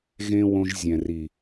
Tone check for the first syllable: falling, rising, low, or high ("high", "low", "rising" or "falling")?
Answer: high